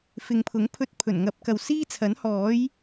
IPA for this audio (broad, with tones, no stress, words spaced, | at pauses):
fɪ˨˧ŋpʰʊ˨˥ŋ pʰɵ˧t̚ pʰɵ˨˩nŋɐ˨˥p̚kɐ˨w siː˥t͡sʰɐ˨˥nhɔː˨˥j